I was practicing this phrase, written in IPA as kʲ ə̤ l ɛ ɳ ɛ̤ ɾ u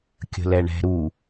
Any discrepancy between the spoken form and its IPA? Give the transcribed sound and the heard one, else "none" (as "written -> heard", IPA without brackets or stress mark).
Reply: none